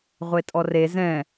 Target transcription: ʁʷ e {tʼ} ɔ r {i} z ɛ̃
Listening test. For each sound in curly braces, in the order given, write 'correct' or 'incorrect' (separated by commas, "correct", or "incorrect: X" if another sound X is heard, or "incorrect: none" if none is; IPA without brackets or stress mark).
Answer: correct, incorrect: e